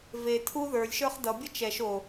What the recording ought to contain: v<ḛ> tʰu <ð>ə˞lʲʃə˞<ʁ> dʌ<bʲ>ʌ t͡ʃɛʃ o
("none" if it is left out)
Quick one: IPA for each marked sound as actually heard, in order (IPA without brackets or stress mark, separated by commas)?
e, ð, χ, bʲ